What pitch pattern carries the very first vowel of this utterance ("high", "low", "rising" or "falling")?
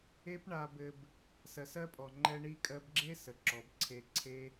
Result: high